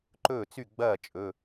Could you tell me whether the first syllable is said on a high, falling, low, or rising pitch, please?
falling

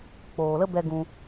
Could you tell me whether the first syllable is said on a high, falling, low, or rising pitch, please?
low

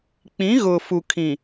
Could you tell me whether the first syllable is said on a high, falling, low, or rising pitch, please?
rising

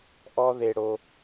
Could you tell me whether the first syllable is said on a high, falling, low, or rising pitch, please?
high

